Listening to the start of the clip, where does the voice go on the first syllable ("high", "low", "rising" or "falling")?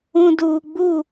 low